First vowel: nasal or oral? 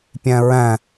nasal